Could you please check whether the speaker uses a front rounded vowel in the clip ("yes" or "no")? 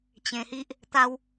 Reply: no